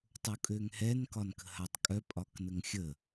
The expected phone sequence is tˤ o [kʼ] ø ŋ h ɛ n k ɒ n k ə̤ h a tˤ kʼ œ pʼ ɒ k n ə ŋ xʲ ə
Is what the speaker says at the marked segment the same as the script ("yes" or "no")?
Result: yes